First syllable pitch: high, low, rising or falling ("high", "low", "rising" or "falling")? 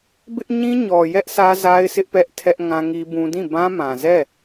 high